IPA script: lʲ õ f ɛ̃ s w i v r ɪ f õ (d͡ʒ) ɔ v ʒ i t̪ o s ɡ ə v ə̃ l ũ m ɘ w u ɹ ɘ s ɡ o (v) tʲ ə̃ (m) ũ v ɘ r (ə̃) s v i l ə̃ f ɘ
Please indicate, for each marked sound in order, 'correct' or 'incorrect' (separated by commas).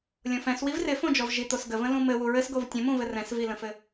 correct, correct, correct, incorrect